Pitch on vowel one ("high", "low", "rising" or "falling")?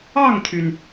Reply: falling